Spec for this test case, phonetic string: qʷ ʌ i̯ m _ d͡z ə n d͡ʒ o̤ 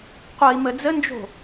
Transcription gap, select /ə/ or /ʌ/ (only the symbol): ə